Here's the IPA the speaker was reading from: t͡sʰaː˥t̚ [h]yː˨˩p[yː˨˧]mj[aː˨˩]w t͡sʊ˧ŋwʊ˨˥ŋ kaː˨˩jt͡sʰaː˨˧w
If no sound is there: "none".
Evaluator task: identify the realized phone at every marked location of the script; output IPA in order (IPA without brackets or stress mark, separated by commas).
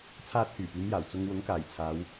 h, yː˨˧, aː˨˩